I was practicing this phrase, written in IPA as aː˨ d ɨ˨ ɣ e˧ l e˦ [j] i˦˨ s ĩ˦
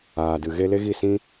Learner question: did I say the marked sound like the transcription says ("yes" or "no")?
no